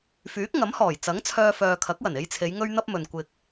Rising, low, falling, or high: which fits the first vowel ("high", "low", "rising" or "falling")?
rising